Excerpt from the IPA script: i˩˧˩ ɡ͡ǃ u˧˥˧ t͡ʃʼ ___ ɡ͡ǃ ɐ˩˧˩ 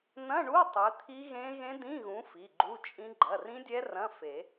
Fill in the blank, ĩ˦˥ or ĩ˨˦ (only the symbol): ĩ˦˥